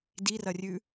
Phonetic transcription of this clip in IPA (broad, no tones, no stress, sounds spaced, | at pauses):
d i r ɐ rʲ ʉ